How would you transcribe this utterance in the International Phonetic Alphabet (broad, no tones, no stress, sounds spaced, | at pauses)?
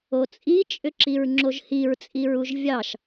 o t͡sʼ i t͡ʃʼ ʏ ǁ i ɹ ŋ͡ǁ o ʒ h i ɹ t͡sʼ i ɹ u ʒ vʲ ɑ ʃ